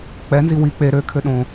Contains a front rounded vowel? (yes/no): yes